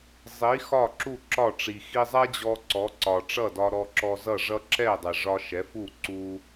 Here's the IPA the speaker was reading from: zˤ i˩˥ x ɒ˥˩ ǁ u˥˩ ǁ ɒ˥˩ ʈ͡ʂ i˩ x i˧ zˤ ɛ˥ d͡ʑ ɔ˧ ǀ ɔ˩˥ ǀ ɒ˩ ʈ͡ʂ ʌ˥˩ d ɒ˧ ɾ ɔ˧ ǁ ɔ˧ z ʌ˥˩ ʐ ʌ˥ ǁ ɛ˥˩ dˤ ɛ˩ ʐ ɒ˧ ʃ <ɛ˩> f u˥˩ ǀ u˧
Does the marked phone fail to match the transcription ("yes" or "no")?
yes